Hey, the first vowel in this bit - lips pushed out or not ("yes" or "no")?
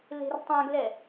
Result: no